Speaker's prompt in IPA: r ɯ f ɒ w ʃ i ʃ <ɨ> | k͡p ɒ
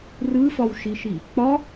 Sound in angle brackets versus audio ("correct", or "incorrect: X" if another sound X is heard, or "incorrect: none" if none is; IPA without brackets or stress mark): incorrect: i